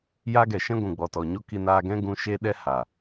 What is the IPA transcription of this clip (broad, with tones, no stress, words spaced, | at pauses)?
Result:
jaː˦ɡɛ˨ʃɛ̃˦ ɡʷũ˨ɡ͡bɔ˨tɔ˨ɲo˦ ki˧naː˧ɡɛ̃˦ ɡũ˧ ʃeː˦ɗɛ˦ haː˨